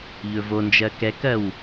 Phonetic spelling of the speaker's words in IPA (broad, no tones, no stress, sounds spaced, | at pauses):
ʎ ɵ v o n d͡ʒ ɜ k ɛ k ɜ w